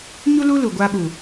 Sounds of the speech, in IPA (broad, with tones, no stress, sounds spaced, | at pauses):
ɲ u˦ l u˦ l u˨ ɡʷ aː˦ ɓ u˨